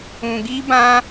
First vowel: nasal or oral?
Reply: nasal